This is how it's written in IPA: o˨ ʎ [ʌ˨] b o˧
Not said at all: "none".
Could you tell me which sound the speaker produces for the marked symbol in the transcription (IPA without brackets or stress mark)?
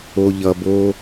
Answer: ʌ˨